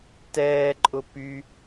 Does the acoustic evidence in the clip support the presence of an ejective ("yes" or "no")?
yes